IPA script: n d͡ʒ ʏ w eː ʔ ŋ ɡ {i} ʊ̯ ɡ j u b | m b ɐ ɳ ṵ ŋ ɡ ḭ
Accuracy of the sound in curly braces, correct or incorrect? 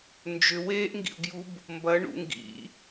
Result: incorrect